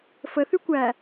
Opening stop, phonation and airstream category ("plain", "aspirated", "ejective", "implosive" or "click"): plain